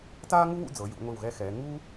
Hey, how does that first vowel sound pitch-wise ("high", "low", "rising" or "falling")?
high